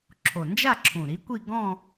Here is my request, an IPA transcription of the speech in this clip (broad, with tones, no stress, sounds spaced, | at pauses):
ǁʰ o˨˩ n d͡ʒ a˥˧ ǁʰ ũ˨˩ ɾ i˨˥ kʷ i˥˧ ɡ ɔ̃˥˧